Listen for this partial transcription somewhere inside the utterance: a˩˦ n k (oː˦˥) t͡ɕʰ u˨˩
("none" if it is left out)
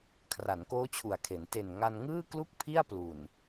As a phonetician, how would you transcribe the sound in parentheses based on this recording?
oː˦˥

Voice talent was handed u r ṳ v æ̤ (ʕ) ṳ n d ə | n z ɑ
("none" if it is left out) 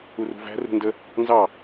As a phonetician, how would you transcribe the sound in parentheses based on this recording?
r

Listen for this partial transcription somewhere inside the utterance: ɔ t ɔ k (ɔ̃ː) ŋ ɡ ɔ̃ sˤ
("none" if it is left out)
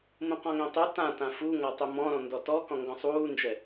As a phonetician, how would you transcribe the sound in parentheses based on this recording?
ɔ̃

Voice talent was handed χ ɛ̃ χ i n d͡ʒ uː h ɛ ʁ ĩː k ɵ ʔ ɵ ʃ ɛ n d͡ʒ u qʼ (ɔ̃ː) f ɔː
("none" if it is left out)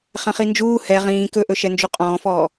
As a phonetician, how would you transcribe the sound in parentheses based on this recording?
ɔ̃ː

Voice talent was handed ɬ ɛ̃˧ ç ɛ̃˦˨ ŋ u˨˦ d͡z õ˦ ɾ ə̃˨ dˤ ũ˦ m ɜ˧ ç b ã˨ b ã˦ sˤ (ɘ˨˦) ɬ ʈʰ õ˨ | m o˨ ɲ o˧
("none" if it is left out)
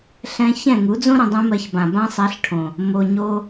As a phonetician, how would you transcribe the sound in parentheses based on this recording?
ɛ˨˦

